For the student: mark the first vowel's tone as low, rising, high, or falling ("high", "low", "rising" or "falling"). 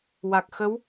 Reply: low